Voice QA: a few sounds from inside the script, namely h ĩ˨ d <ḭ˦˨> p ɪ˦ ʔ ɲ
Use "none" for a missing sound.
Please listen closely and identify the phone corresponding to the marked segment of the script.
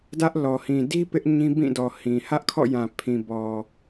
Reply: i˦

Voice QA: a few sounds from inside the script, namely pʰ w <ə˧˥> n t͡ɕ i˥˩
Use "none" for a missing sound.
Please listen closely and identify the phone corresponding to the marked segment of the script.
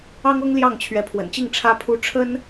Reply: ə̰˨˩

